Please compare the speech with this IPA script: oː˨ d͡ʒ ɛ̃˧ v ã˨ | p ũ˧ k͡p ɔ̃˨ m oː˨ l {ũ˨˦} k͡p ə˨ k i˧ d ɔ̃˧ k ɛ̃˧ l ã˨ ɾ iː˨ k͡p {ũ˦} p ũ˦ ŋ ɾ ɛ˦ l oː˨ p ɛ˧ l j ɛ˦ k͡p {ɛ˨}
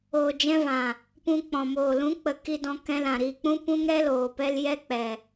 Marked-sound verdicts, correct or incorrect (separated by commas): correct, correct, correct